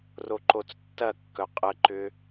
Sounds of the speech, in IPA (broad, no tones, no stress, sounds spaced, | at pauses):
r o ǃ o t͡s tː ɐ kː œ qʼ ə ǃ ʏ